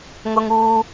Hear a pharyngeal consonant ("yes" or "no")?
no